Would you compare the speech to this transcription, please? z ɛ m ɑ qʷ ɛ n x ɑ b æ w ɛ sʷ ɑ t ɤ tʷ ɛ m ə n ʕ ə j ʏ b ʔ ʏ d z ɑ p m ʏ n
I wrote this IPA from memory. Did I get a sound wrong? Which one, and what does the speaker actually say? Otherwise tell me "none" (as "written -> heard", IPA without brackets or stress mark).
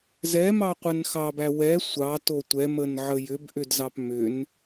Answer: ɤ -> o